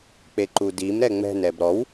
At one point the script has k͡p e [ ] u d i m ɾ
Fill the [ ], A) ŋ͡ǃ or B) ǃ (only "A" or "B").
B